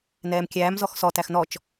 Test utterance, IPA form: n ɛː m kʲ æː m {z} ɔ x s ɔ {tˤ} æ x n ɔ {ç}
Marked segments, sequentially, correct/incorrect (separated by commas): correct, incorrect, incorrect